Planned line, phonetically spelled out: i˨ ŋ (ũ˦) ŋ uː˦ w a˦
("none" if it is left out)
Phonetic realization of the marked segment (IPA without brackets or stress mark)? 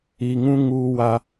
ũ˦